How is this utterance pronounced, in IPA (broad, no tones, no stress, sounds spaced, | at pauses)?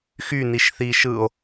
x y n i ʃ θ iː ʃ ɯː o̯